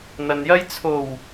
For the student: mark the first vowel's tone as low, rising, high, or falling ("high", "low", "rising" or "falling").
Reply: low